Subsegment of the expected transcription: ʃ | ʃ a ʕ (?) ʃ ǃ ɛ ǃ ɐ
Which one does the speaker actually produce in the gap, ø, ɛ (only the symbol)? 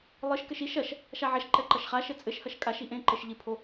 ɛ